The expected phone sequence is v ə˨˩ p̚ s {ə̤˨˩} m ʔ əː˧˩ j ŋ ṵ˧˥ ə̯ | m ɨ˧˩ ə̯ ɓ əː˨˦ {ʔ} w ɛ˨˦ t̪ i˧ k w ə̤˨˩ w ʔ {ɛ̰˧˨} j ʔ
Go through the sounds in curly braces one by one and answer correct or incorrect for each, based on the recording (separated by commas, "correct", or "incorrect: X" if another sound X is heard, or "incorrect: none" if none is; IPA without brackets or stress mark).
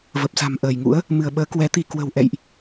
incorrect: a̤˨˩, incorrect: k, correct